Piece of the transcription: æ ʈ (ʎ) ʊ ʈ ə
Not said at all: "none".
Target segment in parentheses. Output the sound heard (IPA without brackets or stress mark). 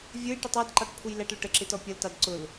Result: l